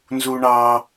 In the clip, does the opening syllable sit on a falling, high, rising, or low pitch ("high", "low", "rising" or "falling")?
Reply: high